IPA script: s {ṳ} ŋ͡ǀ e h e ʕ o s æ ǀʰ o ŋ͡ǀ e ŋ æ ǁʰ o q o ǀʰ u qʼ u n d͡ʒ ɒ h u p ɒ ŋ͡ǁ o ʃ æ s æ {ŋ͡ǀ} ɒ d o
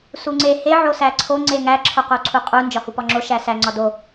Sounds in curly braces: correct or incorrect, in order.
incorrect, correct

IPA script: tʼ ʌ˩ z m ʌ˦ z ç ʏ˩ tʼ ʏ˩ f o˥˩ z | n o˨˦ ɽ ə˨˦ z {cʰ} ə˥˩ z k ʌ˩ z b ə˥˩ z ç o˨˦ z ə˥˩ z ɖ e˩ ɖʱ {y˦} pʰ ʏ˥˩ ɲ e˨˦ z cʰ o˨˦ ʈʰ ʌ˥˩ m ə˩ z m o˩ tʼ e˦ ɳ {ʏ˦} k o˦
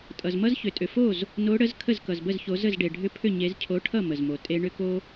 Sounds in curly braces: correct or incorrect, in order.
incorrect, incorrect, correct

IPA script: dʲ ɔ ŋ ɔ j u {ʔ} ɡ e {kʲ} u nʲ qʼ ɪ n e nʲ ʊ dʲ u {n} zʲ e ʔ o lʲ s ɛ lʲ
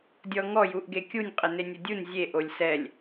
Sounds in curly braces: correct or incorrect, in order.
correct, correct, correct

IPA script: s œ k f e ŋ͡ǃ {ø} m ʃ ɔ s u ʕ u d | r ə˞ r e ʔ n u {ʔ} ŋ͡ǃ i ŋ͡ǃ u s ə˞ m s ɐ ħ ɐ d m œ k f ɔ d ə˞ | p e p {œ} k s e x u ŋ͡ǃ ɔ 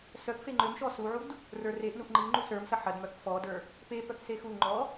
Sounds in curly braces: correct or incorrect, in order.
correct, correct, correct

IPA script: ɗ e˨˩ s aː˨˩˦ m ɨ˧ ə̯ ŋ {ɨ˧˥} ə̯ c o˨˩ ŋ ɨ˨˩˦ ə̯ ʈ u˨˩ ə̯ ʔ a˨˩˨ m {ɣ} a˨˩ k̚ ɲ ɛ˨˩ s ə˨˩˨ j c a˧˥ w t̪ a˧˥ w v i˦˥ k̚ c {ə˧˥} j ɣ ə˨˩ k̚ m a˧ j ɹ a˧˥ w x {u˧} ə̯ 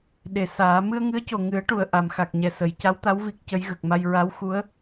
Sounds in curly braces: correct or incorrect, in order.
correct, incorrect, correct, incorrect

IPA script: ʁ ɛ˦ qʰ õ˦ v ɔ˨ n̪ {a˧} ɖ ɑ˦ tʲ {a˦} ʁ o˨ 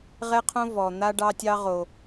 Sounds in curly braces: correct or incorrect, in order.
incorrect, incorrect

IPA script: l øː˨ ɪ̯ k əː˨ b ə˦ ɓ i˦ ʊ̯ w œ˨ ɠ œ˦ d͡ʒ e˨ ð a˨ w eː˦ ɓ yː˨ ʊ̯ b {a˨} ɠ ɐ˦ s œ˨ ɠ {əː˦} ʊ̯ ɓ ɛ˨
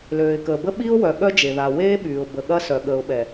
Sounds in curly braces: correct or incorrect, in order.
incorrect, incorrect

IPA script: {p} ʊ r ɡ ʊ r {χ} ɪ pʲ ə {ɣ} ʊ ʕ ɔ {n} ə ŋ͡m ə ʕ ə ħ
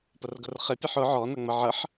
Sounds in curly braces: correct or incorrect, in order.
correct, correct, incorrect, correct

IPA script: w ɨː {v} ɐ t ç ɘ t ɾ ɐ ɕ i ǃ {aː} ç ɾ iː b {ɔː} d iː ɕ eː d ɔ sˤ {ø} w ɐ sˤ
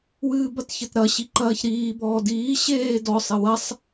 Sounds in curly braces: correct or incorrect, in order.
incorrect, incorrect, correct, incorrect

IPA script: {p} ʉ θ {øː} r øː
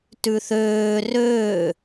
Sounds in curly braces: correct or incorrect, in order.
incorrect, correct

